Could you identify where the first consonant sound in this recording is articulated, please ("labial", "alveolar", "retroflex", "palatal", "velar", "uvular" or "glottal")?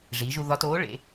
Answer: retroflex